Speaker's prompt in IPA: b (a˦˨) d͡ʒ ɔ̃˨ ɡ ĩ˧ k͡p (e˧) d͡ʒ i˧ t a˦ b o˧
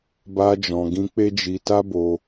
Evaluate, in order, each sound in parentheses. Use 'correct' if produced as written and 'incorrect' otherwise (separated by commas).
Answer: incorrect, incorrect